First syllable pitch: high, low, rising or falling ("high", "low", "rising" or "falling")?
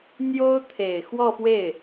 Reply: high